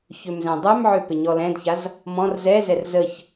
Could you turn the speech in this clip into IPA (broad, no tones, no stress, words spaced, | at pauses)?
çømzɛ̃dˤɛmʕø pɪɲɔlɛ̃dçaz | mɔ̃r zɛzɛr zəç